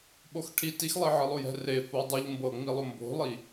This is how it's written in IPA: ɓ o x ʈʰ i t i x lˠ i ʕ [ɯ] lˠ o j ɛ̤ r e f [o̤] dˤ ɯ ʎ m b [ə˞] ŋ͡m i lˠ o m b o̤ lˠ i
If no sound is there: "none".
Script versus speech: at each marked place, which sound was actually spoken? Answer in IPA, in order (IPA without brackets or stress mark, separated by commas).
ɯ, o, ɤ